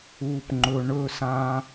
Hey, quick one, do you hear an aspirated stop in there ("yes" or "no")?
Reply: no